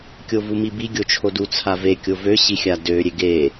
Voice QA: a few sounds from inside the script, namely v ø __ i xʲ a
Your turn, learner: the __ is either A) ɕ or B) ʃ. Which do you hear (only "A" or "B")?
A